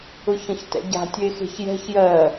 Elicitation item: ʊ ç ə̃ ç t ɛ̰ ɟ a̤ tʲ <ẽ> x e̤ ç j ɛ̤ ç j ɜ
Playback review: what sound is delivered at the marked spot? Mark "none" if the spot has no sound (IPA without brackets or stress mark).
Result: e